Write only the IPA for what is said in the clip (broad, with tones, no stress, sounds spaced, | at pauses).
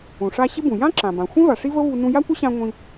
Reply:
ũ˩ ʂ a˧ ɕ ɪ˥ b ũ˩ j ã˥ ǁ ã˩ b ã˩ xʷ ẽ˥ v a˩ ʂ i˥ v ə˥ v u˧ n ũ˧ j a˥ kʷ ə˥ ɕ ã˧ ŋʷ ĩ˧